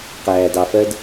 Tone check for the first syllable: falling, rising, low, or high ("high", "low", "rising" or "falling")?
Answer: low